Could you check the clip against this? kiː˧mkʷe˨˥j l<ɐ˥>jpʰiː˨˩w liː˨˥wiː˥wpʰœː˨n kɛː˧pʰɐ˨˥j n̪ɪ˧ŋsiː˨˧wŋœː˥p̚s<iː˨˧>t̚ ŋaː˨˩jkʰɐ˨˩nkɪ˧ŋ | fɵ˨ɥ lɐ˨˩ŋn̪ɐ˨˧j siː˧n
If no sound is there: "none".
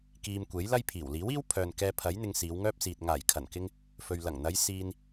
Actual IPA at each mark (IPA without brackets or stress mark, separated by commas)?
ɐ˥, iː˨